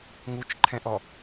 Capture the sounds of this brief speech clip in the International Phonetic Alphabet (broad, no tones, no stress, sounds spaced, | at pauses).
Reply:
ŋ u t͡ʃ ǃʰ ɛ̃ ʔ ɔ